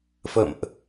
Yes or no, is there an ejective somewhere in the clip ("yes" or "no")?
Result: no